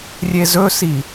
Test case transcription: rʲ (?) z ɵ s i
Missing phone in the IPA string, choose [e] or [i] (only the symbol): e